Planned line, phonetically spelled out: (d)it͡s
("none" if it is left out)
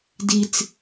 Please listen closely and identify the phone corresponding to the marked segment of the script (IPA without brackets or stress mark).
d